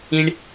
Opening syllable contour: high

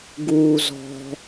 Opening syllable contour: low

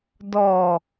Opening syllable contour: low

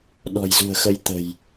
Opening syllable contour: low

